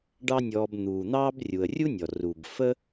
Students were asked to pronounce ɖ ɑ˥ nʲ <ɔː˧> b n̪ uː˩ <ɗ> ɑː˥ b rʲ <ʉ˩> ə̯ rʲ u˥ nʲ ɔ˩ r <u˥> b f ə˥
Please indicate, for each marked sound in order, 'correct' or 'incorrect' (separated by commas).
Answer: correct, incorrect, incorrect, incorrect